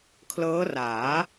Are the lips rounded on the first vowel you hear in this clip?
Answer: no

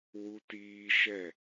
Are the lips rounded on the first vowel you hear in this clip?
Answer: yes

